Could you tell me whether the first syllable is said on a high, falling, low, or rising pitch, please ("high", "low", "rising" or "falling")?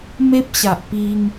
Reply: high